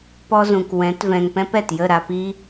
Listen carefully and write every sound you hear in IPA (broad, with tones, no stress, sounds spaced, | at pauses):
p ɔ˦ z ũ˨ k w ɛ̃˨˦ t v ɛ̃˨ ŋ p ɛ̃˦ p ɛ˨ t j ə˦˨ ɾ a˧ p i˦